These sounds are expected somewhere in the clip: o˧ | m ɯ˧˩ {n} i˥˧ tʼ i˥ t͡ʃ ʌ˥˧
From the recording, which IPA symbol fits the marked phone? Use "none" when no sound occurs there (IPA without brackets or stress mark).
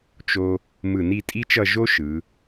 n